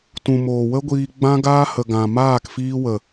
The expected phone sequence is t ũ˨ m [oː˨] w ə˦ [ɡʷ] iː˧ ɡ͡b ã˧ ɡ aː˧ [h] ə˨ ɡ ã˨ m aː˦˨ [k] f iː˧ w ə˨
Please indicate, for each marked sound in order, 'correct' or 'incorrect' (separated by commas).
correct, correct, correct, correct